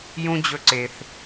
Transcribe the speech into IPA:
jũ˦d͡ʑɵ˧ǀe˨θ

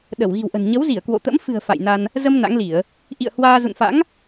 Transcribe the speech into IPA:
ɗə˧˩wɣi̤˨˩wʔə̤˨˩n ɲə˨˦wzi˧˩ə̯kwo̰˧˨t̪ə̰˧˥m fɨ̤˨˩ə̯ fa̰˧˨jna˧n | zə˧m na̰˧˥ŋli˧˩˨ə̯ | ʔḭ˧˨ə̯ hwaː˧ zṵ˧˨nfa̰˧˥ŋ

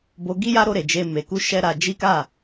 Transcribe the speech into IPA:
bo˧ɡi˦ ja˦ɾo˧ɾe˨ d͡ʒe˧ me˨ku˧ ʃɛ˦ɾa˧d͡ʒi˦ ka˦˨

